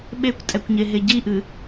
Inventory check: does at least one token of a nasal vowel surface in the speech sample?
no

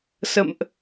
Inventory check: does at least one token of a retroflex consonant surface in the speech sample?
no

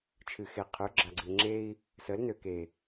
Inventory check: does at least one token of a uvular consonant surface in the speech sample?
yes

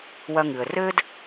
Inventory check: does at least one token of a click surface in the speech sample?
no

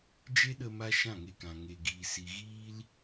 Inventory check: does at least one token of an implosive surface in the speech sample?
yes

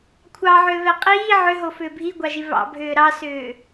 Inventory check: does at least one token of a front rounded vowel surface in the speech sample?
yes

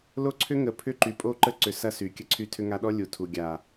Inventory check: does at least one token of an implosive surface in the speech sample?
yes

